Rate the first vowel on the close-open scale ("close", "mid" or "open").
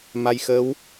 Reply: open